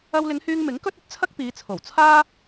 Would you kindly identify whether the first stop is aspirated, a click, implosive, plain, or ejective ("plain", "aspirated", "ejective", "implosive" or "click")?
plain